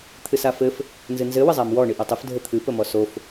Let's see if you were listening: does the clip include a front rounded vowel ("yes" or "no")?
no